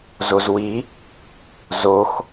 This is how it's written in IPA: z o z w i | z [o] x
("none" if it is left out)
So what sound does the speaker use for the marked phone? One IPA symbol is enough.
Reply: o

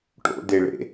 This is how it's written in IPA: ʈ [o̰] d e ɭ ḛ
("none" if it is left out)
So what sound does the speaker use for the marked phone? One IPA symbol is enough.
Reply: o̰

